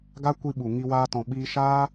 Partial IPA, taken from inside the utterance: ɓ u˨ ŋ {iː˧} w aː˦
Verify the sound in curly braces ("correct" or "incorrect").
incorrect